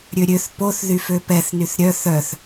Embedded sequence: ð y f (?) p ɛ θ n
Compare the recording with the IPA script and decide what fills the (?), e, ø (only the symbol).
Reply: ø